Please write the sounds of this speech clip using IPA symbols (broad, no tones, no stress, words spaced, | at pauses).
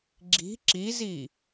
ɡ͡ǁi̤ ǁizi